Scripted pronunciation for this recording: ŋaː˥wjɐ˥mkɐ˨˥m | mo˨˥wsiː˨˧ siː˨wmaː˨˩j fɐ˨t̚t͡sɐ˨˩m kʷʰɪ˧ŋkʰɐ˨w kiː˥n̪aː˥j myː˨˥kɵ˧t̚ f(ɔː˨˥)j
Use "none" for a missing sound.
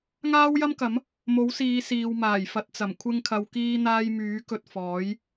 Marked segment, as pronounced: ɔː˨˥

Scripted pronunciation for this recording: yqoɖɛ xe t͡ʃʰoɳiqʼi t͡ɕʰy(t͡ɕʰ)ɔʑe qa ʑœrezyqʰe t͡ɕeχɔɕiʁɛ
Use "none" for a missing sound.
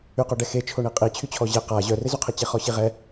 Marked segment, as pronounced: t͡ɕʰ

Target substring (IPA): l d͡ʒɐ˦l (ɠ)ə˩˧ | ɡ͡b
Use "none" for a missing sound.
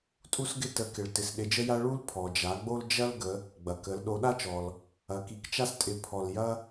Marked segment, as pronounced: ɡ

